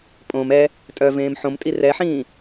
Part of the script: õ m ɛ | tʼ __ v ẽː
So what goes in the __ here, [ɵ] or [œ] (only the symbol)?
œ